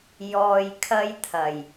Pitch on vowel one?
low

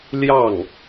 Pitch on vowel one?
falling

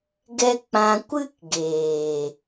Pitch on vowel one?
high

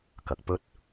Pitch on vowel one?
low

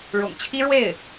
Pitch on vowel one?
low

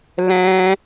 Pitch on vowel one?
high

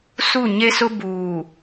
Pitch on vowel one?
falling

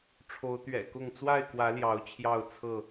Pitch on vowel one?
rising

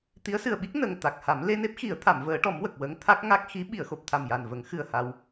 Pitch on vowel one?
rising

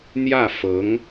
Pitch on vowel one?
falling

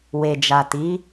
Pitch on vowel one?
low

